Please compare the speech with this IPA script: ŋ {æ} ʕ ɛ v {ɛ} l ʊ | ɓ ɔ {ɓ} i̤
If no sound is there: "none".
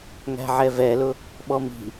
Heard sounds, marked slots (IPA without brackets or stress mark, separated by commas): æ̤, ɛ, m